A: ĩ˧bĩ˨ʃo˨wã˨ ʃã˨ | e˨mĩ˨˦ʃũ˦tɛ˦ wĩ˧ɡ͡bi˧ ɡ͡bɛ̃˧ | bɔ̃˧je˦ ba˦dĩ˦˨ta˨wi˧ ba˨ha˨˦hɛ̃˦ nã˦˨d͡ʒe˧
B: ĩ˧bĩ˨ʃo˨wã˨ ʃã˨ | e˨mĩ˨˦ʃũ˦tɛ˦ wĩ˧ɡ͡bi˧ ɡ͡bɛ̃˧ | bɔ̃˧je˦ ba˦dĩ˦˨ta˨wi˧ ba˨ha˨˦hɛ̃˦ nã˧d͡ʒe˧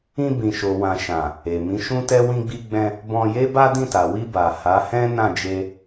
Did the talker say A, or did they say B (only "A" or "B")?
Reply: A